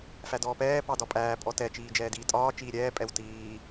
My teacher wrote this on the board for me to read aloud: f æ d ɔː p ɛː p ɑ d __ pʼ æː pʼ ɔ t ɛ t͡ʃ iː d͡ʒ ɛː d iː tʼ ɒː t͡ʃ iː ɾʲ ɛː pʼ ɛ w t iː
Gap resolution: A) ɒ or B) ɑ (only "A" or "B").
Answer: A